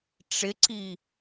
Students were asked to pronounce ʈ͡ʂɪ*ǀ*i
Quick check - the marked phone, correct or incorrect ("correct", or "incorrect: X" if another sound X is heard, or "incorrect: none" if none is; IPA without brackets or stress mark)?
correct